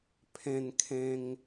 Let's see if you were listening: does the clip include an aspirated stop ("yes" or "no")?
yes